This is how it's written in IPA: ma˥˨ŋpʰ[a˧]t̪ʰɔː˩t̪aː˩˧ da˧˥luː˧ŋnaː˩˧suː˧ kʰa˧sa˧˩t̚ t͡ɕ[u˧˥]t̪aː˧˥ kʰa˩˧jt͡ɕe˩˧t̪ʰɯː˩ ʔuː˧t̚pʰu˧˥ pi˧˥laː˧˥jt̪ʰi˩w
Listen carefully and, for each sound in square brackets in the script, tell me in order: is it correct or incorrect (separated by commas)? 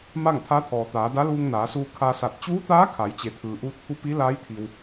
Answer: incorrect, incorrect